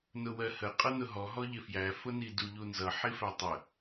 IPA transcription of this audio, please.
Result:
n ʊ w ɜ h ə qʼ ʌ n ʊ ɦ ɔ ɦ ɔ ʎ ɪ f j æ f ʊ n i d u ʎ u n z ʌ ħ i f æ tˤ ə

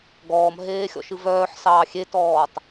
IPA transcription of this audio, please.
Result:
ɡ ɔː m ɦ eː xʲ ɔ̰ ʃ ɨ v œː ħ s ɑː xʲ e t ɔː tˤ

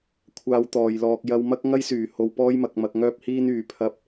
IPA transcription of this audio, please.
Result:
kʷʰ aː˧ w t̪ ɔː˨ j l ɔː˧ k̚ j ɐ˧ w m ɐ˥ k̚ ŋ ɐ˥ j s yː˨ h o˧ w p ɔː˥ j m ɐ˨˥ k̚ m ɐ˧ k̚ ŋ œː˥ p̚ h iː˥ n yː˧ pʰ ɐ˥ p̚

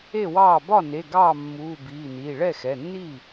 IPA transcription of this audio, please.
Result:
e˥˩ w ɑː˥˩ b ɒ˥˩ n e˩˧˩ ɡ ɑː˥˩ mː uː˩˧˩ b iː˩˧˩ n iː˩˧˩ ɭ ɛ˥˩ x ɛ˩˧˩ nː iː˥˩

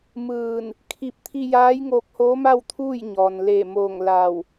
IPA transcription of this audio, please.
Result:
m ɯː˧˩ n | kʰ i˧˥ p̚ t̪ʰ i˧ j aː˧˥ j ŋ oː˧ k̚ h oː˧˥ m a˥˨ w t̪ʰ uː˥˨ j ɲ ɔː˩ n l eː˧˩ m oː˧˩ ŋ l aː˧˩ w

